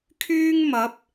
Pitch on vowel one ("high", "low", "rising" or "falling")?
high